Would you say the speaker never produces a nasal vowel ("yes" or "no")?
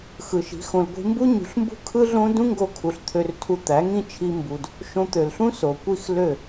no